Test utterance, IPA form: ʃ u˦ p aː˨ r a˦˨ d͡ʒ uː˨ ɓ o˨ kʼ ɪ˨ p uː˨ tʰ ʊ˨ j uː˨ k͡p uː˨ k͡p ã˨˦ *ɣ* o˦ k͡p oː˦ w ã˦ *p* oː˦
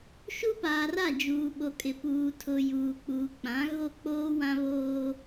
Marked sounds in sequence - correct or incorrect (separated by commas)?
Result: correct, incorrect